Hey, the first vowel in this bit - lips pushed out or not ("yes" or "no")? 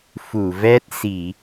yes